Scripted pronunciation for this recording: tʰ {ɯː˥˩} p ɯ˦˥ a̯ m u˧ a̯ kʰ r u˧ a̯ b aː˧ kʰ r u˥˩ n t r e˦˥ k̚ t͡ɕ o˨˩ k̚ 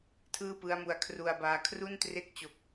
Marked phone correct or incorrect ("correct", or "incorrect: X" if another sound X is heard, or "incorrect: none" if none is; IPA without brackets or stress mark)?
correct